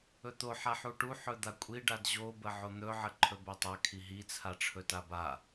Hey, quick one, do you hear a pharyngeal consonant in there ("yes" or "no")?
yes